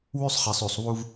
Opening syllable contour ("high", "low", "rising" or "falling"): high